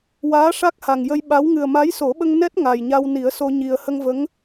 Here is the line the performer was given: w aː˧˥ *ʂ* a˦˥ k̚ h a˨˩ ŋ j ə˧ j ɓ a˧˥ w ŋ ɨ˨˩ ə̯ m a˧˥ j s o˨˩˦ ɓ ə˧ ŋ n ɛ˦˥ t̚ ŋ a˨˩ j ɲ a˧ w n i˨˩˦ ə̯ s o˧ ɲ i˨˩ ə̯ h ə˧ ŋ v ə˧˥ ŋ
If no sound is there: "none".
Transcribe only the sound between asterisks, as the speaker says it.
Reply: ʂ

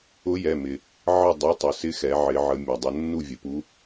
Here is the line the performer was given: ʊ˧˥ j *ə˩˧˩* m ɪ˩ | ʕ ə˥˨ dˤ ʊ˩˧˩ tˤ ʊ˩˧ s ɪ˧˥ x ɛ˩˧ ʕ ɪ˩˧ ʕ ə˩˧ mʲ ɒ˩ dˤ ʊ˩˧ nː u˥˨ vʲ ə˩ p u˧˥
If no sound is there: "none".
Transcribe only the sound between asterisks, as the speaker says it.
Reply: ɛ˩˧˩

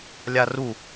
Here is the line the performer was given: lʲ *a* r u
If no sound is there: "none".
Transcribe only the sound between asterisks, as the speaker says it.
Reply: a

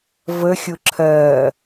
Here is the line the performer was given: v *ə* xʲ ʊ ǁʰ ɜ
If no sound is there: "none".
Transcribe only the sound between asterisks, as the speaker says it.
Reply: ə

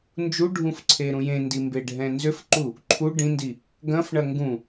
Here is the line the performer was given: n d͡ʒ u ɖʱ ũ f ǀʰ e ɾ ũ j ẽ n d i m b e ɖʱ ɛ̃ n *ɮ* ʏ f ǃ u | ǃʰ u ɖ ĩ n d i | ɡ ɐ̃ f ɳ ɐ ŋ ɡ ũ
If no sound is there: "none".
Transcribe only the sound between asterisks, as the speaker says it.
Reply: z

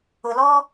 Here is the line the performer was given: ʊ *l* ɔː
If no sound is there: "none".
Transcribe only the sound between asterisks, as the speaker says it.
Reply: l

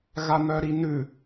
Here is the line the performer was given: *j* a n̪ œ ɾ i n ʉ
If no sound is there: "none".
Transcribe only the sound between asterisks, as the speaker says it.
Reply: ɣ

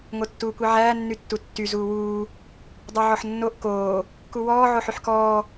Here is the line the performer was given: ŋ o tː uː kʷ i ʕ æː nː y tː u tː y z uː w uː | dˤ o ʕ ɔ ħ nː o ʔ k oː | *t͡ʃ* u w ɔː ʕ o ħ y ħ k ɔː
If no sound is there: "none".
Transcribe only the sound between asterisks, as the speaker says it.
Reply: k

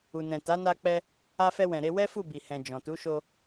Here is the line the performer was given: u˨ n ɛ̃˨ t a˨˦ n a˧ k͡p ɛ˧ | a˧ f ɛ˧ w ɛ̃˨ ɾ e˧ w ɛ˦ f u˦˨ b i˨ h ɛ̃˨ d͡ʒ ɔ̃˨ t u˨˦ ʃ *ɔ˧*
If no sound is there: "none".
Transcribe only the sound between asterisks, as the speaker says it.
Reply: o˧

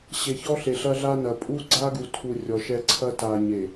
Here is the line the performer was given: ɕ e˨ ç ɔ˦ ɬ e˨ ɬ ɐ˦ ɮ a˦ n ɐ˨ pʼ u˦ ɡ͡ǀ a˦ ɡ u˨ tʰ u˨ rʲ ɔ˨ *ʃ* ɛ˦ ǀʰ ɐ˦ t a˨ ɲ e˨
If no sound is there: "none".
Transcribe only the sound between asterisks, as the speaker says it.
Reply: ʃ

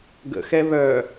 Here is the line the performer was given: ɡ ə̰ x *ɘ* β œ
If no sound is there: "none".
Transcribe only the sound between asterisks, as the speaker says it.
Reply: ɛ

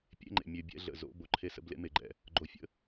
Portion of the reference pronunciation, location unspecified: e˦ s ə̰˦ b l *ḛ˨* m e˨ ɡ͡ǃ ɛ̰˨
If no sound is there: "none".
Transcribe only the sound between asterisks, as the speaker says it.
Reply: ḛ˦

